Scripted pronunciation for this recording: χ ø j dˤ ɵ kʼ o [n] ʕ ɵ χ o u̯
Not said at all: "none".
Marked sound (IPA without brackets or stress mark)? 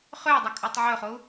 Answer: tˤ